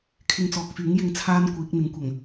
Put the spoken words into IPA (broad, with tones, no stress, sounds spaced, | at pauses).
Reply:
kʰ ɪ˧ ŋ t͡s ɔː˨ k̚ f yː˨˥ ŋ j ɪ˧ ŋ t͡sʰ aː˥ n kʷ iː˨˥ k̚ n̪ ɪ˨ ŋ kʷ ɐ˨˩ ŋ